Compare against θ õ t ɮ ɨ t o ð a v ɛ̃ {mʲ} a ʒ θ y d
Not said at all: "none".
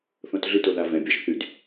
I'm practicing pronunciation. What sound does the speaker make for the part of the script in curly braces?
bʲ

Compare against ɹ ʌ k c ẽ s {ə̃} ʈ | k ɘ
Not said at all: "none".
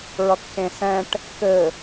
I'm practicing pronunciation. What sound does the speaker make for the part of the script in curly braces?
ɛ̃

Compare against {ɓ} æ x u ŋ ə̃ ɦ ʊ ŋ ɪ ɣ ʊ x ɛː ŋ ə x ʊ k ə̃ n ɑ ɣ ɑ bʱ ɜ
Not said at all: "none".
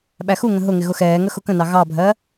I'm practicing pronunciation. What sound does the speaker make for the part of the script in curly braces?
ɓ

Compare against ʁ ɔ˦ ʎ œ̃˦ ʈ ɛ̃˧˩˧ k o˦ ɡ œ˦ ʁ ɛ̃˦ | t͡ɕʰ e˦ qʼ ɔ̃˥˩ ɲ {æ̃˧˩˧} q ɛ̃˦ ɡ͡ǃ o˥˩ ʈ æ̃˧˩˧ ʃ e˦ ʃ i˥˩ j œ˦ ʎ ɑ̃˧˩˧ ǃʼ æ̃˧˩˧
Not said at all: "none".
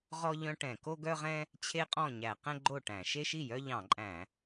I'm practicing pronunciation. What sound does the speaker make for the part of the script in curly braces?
æ˧˩˧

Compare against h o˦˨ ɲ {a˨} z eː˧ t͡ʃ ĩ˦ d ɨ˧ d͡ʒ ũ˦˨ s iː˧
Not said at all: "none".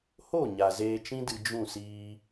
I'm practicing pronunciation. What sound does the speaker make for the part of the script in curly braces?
a˨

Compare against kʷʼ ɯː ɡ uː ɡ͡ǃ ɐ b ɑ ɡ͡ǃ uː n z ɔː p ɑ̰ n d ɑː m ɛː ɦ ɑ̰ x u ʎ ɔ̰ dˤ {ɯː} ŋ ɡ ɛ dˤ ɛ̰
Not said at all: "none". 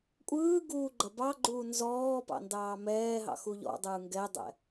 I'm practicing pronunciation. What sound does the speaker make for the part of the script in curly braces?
ɯː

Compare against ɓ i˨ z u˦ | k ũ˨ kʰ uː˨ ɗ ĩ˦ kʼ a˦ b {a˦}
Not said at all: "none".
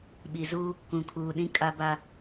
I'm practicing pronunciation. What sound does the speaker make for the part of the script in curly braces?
a˦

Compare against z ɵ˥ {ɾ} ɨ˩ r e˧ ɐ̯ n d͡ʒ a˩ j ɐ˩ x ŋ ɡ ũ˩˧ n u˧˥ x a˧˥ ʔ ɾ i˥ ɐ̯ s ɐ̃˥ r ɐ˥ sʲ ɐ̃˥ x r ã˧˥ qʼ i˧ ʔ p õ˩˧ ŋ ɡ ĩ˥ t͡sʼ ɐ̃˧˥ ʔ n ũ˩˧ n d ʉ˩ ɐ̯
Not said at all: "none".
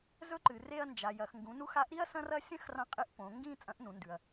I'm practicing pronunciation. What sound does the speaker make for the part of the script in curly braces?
ǃ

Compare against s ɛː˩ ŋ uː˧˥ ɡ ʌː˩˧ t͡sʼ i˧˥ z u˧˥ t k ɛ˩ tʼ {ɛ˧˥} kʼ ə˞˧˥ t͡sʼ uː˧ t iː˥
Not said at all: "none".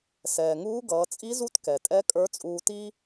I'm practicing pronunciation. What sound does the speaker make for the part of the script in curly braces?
ɛ˧˥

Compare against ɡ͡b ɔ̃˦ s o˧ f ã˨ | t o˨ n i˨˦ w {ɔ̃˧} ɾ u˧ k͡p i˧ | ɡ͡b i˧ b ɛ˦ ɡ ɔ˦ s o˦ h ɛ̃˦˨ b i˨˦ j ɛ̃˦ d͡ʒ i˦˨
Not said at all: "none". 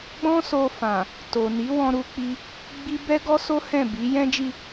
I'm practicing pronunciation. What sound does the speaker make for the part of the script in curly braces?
ɔ̃˧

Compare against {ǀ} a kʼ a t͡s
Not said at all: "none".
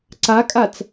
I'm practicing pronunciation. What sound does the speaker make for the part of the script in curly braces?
ǀ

